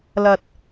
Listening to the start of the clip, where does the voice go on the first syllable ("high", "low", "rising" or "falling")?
low